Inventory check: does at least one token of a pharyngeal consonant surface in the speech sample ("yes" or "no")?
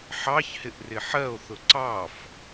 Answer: yes